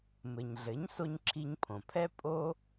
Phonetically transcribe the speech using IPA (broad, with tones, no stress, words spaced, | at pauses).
mɘ˩ɲɮɘ˩˥ɲso˧ɲ ǁʰi˧ɲpʰõ˩pʰɛ˥ pʼo˥